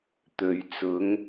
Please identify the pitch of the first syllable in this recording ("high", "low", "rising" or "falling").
low